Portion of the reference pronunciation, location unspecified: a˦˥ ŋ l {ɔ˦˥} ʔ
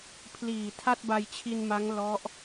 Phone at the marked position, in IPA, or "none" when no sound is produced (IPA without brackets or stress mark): ɔ˦˥